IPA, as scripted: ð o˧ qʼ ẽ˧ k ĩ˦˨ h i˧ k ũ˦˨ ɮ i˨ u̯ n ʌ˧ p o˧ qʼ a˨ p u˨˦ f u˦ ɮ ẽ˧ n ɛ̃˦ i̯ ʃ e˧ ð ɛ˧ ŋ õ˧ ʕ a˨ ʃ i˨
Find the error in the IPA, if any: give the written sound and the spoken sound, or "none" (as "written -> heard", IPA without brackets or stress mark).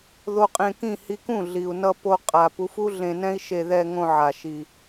none